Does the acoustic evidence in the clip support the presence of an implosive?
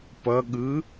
yes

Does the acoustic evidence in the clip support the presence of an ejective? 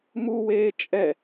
yes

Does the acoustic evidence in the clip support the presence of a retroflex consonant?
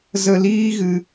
no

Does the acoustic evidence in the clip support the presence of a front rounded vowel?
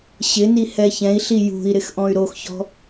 yes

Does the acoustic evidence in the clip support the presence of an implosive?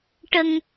no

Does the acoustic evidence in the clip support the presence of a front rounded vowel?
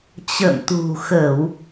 no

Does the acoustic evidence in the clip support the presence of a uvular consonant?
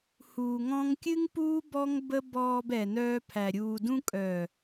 no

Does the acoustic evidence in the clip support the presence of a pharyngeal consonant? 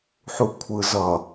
yes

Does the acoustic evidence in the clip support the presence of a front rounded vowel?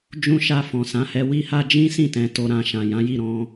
no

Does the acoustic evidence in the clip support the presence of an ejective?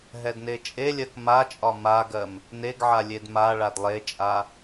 yes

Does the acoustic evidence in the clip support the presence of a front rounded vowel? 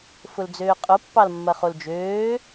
yes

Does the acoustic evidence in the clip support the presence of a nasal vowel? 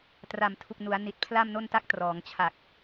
no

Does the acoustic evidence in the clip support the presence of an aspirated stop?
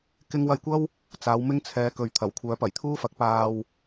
yes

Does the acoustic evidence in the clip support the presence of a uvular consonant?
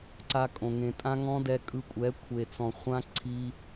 yes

